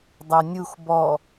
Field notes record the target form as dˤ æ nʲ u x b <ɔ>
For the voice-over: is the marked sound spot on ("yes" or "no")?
yes